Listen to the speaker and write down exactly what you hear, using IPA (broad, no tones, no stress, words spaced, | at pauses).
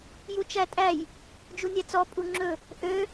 jut͡ʃætʼæj | d͡ʒunʲæt͡sɔ pʼuŋ͡ǁɵ | ʔø